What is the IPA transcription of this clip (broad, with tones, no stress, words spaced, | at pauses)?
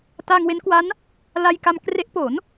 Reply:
ta˧ŋwe˦˥n kwa˦˥n | la˧jka˧mkre˦˥ʔ po˩˦n